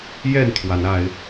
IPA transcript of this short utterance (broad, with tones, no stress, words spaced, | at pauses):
jɛ˥˨nt̪ʰwa˨˦na˨˦ɪ̯